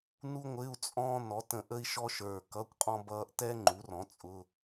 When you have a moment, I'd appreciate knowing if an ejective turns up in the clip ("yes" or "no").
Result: yes